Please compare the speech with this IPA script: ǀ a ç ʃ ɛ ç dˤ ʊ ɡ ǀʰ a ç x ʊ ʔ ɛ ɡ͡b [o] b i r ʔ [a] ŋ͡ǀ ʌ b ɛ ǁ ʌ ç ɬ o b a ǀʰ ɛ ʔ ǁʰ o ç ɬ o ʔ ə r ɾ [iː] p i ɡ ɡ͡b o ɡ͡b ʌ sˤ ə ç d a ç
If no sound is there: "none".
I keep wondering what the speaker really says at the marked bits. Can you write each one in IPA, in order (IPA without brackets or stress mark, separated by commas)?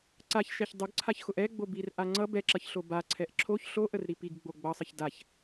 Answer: o, a, i